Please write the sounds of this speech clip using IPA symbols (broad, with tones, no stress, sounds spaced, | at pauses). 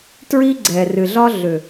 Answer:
t ɹ i˦ ɡ͡ǀ ɛ˨ r ɨ˨ ɮ ɒ˦ ɮ ʏ˨